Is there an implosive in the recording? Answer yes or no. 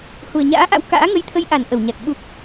yes